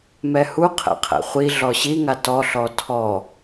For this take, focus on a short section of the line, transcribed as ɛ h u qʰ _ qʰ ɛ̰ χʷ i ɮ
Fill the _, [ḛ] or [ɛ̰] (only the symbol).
ɛ̰